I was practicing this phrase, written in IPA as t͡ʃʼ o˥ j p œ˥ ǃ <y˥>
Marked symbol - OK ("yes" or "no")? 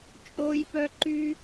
yes